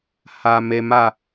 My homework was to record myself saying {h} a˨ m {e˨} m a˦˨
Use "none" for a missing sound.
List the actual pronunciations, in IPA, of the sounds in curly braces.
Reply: h, e˨

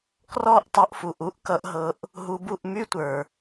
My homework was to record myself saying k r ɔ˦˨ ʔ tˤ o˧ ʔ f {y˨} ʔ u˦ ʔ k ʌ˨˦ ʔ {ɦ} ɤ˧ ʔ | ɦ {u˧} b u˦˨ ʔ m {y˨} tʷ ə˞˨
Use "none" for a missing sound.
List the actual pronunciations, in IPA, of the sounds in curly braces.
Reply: u˨, ɦ, u˧, y˦

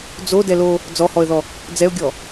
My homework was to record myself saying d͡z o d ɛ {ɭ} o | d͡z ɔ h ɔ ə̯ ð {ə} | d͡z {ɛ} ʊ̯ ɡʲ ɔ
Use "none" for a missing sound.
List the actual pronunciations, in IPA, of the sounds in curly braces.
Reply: l, ɔ, ɛ

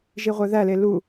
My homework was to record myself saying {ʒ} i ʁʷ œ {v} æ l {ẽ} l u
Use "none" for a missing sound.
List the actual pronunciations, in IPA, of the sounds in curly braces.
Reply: ʒ, ð, e

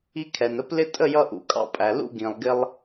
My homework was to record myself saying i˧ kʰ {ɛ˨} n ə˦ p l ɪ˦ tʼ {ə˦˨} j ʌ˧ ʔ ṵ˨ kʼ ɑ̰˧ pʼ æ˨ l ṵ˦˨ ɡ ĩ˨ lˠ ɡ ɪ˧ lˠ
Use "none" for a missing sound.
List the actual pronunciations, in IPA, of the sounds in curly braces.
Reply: ɛ˨, ə˦˨

